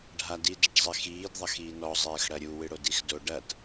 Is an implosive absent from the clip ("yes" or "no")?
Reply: yes